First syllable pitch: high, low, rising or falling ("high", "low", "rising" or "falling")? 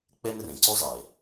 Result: high